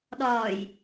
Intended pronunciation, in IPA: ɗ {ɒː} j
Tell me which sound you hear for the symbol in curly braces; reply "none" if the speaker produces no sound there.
ɒː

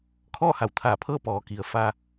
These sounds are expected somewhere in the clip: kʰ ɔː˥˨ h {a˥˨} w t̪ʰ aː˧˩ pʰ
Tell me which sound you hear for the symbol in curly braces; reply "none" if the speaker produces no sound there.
a˩˧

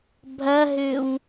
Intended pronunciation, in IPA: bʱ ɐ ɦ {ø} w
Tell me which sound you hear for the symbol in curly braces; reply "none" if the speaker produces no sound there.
ø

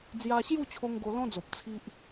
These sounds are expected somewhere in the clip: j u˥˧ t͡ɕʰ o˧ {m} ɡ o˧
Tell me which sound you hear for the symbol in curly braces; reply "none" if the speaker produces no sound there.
ŋ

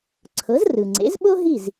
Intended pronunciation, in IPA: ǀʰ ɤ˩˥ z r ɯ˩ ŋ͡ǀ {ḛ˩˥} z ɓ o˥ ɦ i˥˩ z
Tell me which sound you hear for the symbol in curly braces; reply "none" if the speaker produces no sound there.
ḛ˩˥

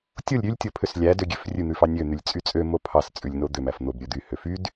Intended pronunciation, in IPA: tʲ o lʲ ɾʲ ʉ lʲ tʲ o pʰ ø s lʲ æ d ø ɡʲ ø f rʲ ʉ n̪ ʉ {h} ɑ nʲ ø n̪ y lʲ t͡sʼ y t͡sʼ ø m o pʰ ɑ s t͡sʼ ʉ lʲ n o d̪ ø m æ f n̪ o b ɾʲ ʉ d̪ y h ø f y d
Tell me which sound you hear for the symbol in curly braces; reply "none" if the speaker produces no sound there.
f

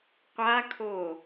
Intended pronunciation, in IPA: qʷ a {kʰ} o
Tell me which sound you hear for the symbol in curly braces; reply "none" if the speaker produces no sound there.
kʰ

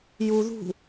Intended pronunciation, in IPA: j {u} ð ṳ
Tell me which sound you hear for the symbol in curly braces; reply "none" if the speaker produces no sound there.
u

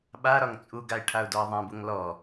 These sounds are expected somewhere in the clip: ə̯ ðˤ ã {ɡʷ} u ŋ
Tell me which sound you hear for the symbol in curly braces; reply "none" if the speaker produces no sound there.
b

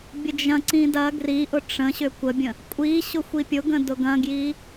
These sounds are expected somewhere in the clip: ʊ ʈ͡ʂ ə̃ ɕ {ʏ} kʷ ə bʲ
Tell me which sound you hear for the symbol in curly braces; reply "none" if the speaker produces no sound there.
ʏ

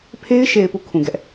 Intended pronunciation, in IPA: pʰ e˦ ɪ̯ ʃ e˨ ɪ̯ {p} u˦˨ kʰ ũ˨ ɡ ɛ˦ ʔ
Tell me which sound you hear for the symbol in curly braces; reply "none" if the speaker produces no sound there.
p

